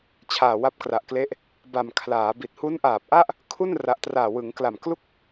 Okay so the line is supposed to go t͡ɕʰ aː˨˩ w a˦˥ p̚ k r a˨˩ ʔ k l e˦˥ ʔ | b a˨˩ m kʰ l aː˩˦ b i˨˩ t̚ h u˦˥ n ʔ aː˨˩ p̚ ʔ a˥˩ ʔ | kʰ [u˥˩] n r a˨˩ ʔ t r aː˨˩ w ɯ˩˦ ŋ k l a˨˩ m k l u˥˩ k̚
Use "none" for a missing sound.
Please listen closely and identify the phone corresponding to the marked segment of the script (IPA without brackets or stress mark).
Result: u˥˩